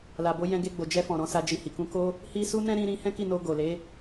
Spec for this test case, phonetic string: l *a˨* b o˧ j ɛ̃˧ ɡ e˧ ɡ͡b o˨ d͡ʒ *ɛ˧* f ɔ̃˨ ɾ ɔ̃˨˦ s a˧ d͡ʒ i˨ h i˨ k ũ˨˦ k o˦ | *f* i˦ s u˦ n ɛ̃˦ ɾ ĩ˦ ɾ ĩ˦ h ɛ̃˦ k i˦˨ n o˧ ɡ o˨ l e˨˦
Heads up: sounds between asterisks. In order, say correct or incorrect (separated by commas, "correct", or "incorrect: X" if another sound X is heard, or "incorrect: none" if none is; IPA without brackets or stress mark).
correct, correct, incorrect: h